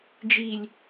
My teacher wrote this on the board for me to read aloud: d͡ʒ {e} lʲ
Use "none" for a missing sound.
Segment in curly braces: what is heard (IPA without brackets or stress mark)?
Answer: i